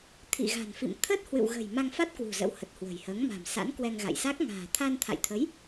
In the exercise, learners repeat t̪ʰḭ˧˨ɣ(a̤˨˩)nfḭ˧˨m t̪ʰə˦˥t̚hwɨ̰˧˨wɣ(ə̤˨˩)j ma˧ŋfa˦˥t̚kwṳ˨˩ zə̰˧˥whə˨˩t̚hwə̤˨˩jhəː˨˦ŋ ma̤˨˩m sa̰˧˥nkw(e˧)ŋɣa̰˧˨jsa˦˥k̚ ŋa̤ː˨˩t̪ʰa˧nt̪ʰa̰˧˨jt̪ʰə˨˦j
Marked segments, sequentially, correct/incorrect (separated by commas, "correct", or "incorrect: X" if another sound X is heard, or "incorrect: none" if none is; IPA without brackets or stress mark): correct, correct, incorrect: ɛ˧